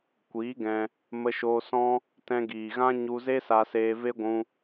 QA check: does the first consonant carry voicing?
no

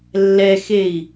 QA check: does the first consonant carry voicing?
yes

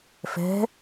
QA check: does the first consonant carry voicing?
no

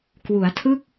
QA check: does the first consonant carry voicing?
no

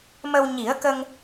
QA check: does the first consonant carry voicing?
yes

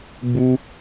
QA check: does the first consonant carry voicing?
yes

